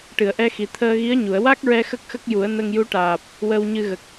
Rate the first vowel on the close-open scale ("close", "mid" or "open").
close